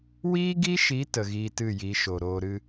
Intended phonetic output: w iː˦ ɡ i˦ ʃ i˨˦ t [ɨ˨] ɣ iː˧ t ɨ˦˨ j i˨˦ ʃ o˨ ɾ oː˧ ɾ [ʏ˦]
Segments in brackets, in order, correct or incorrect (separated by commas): incorrect, incorrect